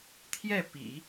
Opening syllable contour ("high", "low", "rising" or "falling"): falling